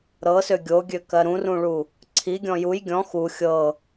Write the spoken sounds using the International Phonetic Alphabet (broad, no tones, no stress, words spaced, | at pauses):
ɾɤsø ɡʲoɡʲøkɜ ɾũrũɭu | ǀʰiɡʲɔ̃ juj ɡʲɔ̃ xu xʲɤ